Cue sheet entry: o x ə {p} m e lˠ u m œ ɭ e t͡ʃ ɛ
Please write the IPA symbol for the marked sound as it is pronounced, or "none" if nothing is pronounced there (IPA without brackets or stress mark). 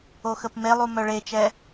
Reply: p